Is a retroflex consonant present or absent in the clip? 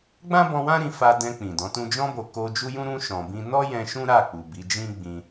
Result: absent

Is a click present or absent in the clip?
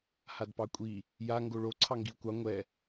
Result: present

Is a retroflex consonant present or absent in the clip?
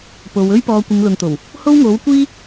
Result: absent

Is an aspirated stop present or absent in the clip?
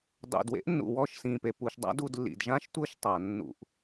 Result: absent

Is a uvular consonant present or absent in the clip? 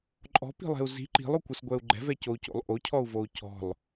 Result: absent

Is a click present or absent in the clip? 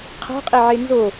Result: absent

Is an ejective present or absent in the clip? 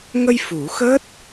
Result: absent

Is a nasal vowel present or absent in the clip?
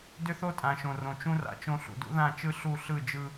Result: present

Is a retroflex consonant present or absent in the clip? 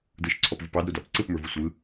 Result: absent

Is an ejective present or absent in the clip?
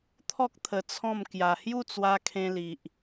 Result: absent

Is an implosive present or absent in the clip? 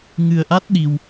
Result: present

